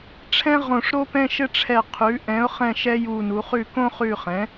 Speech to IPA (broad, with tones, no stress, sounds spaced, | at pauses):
ʈ͡ʂʰ ɛ̃˥ ʁ õ˦˨ ʂ ɾ o˥ p ɛ̃˥ ʃ ɘ˥ ʈ͡ʂʰ ɛ˦˨ qʰ ʉ˨˥ ʔ ɛ̃˨˥ ʊ̯ χ ɛ̃˦˨ ʃ ɛ˥ j u˦˨ n u˨˥ χ ʉ˦˨ k õ˥ χ ʉ˦˨ χ ɛ̃˨˥